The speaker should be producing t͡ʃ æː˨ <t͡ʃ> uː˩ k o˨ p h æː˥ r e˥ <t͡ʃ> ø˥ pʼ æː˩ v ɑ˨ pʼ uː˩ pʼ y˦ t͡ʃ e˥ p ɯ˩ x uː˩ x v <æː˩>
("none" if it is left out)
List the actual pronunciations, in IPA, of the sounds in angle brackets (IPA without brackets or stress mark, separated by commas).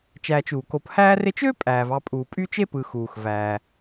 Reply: t͡ʃ, t͡ʃ, æː˩